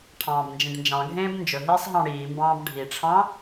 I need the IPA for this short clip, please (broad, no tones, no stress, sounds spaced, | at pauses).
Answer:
ʈʰ ɑ̃ː b n d͡ʒ ĩ ɖ n d͡ʒ ɑ̃ ɡʱ ẽː b n d͡ʒ ɵ ɦ iː sˤ ɦ ɑ̃ ɽ iː m b ɑ̃ː b ɖʱ i ʈ͡ʂʰ ɑ̃